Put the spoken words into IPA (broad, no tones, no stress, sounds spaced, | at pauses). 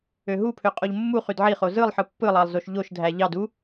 ø ɦ u pʰ ø qʼ o ʎ mː u χ y d ʕ i χ o z ɯ lˠ ħ ɯ pː ɯ lˠ ɑ lˠ z o ʃ ʎ o ʃ dʱ æ ʎ ɑ d u